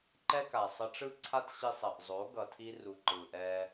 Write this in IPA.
ǃ ɛ˦ k a˨ sˤ ʌ˧ ʈ͡ʂ ɯ˦ ǀʰ a˦ t ɕ i˧ sˤ ʌ˨ ʔ zˤ o˨˦ ɡ ʌ˨ tʰ i˧ r u˨ ǃ ɯ˨ ʔ ɛ˧

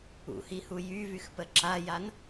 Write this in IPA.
ṵ h i h u j y v y x p ə ǁ a j a n

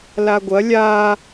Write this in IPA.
l a ɡʷ ɐ lʲ a

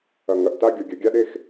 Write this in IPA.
ɐ˨ ŋ ɐ˨ ʔ t a˦ ɡʲ o˨ ɡʲ ɐ˨ ɡʲ a˦ ɗ e˦ x

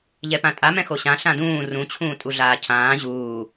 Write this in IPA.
ʎ ɛ p ã tʼ a m ɛ̃ x o ɕ ã ɬ ã d ũː r ũ t͡ɕʰ ũː tʼ u ɮ aː cʰ ãː ʑ uː

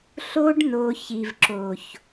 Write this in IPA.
ɬ o˧ ɖ n o˨ ç i˨ v ǁ o˨ ç

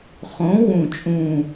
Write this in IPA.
χ õ˨˥ w ũ˧˩ t͡ʃʼ ũ˧˩

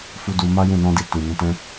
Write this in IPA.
f u˦ d u˧ m a˦ j ũ˦˨ n ɔ̃˧ d i˨ t ĩ˨ n ɛ̃˨˦ t ɛ̃˧

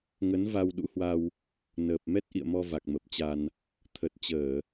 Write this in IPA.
ŋ ə˨˦ n v a˧ w ɗ ṵ˧˥ h w a˧ w | n əː˨˩ p̚ m ɛ˦˥ t̚ ʔ ḭ˧˨ ə̯ m ɔ˧ v a˨˩ k̚ m ə˨˩ p̚ t͡ɕ a˧ n | t̪ʰ ə˨˩ t̚ t͡ɕ əː˧˩˨

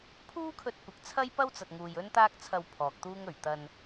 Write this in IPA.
pʰ uː˥ kʰ ɵ˧ t̚ kʷ ɐ˨˥ k̚ t͡sʰ ɐ˥ j p ɐ˥ w t͡s ɐ˨ t̚ ŋ uː˨ j ɵ˥ n t̪ aː˥ k̚ t͡sʰ ɐ˧ w pʰ ɔː˨ k̚ t̪ uː˥ ŋ ɵ˨˩ ɥ t̪ ɐ˧ n

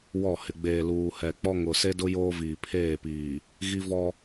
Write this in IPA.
w ɔ˦˨ h ɪ˨ ɡ͡b eː˨ l uː˨ h ɛ˨ k͡p ɔ˦ ŋ ʊ˨ s e˦ d ʊ˦ j oː˦ v iː˨ pʰ eː˦˨ p iː˨ | ɣ i˦ v ɔ˦

